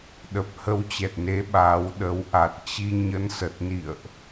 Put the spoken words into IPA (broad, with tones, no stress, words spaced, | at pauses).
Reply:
ɗə˨˩p̚ hə˧wt͡ɕɛ˨˩t̚ne˨˦ ɓa˨˦w ɗə˨˦w ʔa˨˩t̚t͡ɕi˧ ɲə˧nsə˨˩t̚ nḭ˧˨ə̯ʔ